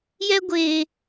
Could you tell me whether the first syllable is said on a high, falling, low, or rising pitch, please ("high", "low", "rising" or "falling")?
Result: high